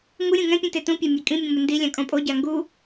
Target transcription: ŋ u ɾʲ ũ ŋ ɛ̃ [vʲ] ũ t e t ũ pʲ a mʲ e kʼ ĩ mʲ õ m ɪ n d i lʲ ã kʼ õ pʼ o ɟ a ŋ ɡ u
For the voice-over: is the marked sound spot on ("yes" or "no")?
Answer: no